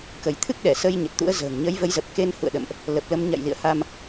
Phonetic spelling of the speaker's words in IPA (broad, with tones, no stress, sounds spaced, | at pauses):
k ə˧˩ j t̪ʰ ɨ˦˥ k̚ ɗ ɛ˧˩ s əː˧ j ɲ ə˨˩ t̚ t̪ ṵ˧˥ ə̯ z ə̤ː˨˩ ŋ ɲ ə˨˦ j v ə˨˦ j z ə˨˩ p̚ k e˧ n h ṵ˧˨ ə̯ ɗ ə̰˧˨ m ʔ | l ə˨˩ p̚ l ə˧ m ɲ a̰˧˨ j l ḭ˧˨ ə̯ h a˧ m